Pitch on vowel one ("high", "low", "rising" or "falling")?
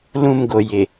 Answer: falling